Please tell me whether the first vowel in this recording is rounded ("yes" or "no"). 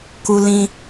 yes